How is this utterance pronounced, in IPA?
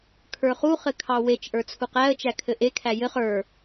kʰ ə˞ χ u χ ɘ kʰ ɑ w e t͡ʃ ʔ ə˞ t͡sʰ u q æ ə̯ t͡ʃ æ kʰ ɘ ʔ e kʰ æ j ɘ χ ə˞

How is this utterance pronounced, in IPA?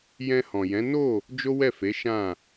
j ɛ̃˧ h ɔ̃˨ j ɛ̃˨˦ n o˦˨ | d͡ʒ o˦ w ɛ˦˨ f e˨˦ ʃ ã˦˨

